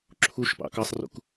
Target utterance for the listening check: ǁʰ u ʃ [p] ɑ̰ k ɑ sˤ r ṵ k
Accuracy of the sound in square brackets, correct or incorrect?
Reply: correct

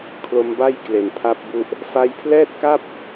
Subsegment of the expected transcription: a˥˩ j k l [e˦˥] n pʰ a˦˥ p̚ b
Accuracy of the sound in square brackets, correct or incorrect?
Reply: incorrect: e˨˩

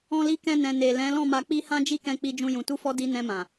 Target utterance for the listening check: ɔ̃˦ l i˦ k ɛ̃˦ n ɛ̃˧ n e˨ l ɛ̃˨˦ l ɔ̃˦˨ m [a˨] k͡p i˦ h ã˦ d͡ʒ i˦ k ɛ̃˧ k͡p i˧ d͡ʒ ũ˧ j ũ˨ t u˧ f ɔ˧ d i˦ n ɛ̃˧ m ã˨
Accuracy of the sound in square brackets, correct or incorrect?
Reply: incorrect: a˧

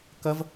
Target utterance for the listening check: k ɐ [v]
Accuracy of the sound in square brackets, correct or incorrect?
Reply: correct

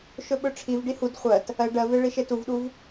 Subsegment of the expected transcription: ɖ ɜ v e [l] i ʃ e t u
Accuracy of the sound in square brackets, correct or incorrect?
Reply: incorrect: ɭ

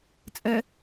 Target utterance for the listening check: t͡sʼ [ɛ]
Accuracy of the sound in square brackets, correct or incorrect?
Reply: correct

